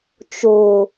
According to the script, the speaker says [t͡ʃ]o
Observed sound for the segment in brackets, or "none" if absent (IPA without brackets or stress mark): t͡ʃ